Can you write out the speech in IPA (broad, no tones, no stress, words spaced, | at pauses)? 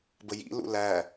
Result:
bəjḭ lṵlæ